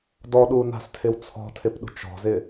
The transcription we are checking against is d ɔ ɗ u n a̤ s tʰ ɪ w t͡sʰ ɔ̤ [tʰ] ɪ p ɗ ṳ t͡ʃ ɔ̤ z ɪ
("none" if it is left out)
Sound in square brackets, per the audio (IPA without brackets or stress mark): tʰ